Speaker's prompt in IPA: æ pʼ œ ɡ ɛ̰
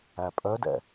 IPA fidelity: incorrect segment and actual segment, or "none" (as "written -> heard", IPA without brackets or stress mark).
ɡ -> d